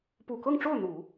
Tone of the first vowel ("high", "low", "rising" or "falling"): low